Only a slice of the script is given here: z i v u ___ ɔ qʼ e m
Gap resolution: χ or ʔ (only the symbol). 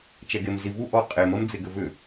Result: ʔ